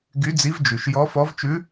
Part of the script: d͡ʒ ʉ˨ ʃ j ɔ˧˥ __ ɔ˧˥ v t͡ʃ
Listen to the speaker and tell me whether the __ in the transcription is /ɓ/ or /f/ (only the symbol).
f